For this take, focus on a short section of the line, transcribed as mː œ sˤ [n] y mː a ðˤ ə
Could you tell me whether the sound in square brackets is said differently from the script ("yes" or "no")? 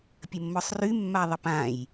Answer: yes